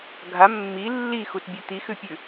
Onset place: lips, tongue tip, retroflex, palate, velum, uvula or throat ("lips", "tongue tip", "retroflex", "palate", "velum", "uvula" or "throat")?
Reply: velum